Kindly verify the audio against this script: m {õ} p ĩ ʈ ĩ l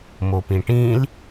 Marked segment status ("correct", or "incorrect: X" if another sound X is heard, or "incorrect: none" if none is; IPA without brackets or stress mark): incorrect: o